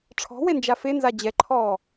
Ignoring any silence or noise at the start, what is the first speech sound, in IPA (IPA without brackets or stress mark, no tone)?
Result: ʈ͡ʂʰ